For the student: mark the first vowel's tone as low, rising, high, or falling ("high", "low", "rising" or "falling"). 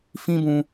high